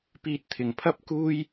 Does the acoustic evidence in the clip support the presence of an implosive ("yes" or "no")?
no